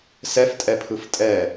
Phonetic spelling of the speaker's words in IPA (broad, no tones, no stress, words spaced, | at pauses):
sɛftʼɛpʰɯf tʼɛ